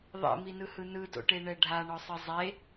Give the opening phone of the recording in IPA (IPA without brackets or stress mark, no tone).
ðˤ